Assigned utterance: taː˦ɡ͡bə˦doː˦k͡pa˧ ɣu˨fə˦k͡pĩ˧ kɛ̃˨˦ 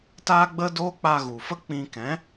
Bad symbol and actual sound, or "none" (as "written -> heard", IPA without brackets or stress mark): none